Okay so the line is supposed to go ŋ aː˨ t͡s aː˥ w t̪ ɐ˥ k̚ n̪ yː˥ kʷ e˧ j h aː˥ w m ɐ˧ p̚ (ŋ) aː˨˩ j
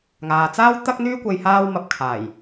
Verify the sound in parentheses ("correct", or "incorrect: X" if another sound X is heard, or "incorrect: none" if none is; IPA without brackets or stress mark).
incorrect: kʰ